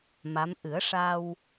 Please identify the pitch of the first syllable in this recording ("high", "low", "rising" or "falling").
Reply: rising